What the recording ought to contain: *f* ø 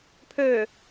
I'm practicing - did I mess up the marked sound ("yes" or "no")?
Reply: yes